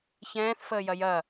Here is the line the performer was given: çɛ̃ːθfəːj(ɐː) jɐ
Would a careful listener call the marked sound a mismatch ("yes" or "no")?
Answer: yes